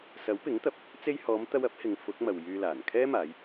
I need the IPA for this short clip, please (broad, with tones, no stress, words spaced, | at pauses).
sɐ˨˥wpɪ˨˥ŋt̪ɐ˨p̚ | t͡se˧jhɔː˨˧mt̪ɐ˧w ɐ˥p̚hɪ˨˧ŋ fʊ˨˥k̚mɐ˨w jyː˧laː˨˩n kʰɛː˥ maː˨˧j